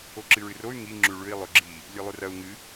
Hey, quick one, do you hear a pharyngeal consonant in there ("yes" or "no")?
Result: no